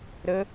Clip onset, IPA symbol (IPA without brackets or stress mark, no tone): ɾ